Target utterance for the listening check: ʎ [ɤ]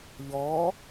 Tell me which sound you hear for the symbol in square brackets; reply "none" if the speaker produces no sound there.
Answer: ɔ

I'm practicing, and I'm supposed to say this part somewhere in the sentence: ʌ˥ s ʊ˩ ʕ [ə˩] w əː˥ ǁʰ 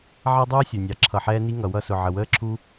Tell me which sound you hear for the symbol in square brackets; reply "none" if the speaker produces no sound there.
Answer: ə˩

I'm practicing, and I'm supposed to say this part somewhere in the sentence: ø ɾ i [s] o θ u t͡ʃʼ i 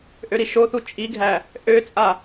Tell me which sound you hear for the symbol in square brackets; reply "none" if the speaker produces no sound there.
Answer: ʃ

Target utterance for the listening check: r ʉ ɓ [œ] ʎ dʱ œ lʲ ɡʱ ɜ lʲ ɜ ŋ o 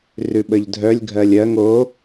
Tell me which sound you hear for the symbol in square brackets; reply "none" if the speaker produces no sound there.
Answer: ə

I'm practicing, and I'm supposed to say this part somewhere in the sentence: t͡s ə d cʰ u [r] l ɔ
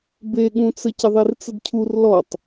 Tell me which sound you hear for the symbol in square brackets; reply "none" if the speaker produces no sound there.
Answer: r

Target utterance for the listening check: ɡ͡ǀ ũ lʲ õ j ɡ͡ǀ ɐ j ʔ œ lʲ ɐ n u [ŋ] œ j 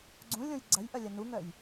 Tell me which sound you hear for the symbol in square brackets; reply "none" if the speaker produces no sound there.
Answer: ŋ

